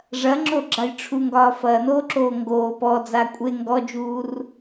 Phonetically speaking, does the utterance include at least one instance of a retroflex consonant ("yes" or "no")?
yes